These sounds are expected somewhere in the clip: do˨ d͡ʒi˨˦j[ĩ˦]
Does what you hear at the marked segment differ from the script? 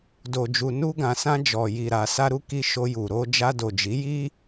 yes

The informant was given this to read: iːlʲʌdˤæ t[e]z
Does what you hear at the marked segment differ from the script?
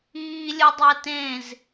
yes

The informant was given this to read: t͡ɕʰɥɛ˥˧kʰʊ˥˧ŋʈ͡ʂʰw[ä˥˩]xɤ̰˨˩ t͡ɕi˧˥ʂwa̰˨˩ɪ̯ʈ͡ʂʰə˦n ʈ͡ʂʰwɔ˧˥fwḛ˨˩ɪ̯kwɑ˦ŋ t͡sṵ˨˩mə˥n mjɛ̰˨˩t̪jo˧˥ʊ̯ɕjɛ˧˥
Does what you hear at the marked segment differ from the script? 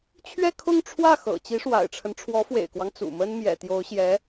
no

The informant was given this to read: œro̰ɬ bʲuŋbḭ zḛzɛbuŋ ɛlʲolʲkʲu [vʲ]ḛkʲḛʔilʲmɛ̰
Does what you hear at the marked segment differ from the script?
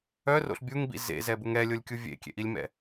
no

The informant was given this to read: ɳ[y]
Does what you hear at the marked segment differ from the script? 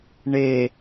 yes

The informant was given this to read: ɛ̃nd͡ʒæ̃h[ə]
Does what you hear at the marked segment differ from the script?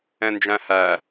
yes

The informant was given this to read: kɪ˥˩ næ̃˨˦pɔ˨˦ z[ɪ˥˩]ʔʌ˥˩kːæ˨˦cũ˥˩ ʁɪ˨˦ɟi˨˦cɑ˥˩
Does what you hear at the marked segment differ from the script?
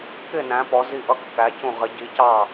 yes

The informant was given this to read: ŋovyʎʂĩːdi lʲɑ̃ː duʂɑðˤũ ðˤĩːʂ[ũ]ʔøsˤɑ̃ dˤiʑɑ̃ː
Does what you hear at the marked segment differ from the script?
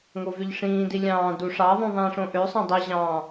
yes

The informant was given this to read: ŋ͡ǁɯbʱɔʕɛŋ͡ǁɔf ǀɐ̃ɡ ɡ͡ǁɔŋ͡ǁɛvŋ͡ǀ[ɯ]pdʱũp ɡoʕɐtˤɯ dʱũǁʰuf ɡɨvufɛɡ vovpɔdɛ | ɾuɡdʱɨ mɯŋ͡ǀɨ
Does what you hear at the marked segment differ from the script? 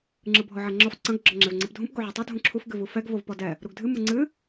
no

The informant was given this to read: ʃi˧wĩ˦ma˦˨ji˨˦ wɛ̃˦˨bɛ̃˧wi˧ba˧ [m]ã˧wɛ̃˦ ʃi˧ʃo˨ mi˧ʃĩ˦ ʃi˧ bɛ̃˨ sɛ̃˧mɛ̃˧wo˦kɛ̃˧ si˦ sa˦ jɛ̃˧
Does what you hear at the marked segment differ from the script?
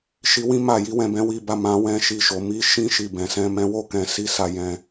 no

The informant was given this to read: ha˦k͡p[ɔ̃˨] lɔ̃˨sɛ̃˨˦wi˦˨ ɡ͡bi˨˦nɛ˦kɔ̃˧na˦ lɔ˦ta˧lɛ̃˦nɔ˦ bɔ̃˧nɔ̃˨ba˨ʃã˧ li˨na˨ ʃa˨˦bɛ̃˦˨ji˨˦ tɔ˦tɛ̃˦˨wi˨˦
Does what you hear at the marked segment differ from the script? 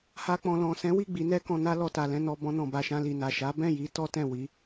yes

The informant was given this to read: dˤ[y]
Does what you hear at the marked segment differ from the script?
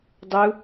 yes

